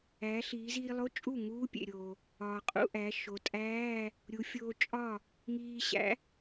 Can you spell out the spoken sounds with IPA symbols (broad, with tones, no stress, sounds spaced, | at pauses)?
æː˩˧ ɬ iː˩˧ z iː˧ lˠ o˧˥˧ t͡ʃʼ u˥˩ ŋ uː˧˥ pʲ ḛ˩ ɾʲ oː˩ | ɒː˩ qʼ ṵ˧˥˧ ʔ æ˩˧ ʃ o˩˧ tʼ æː˧˥˧ | ɾʲ u˩˧ fʲ oː˧ t͡ʃʼ ɒ˥˩ | ŋ iː˧ ɕ æ̰˧˥